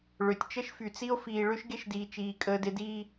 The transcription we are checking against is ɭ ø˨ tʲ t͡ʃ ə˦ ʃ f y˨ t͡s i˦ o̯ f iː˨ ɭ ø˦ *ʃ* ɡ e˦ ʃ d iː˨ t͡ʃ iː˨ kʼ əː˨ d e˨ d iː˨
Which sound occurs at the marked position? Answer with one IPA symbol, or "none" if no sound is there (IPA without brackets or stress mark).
ʃ